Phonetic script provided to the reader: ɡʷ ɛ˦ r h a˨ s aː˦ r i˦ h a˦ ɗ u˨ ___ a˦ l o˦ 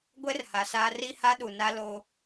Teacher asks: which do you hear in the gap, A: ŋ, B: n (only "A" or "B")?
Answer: B